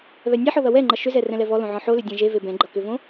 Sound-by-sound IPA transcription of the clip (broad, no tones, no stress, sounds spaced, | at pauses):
β ɛ nʲ ɛ ħ ɔ ð ʌ w ɛ ŋ͡ǃ ʌ ʃ ʏ z ɛ r ɛ̃ l ɛ v ɔ l õ ʕ ɔ̃ ħ o l ʏ dʲ ɛ̃ ʒ e v e b ɛ̃ ɡ͡ǃ ʌ k ʏ v õ